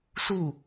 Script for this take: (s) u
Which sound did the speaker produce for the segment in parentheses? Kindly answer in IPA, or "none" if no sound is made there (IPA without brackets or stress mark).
s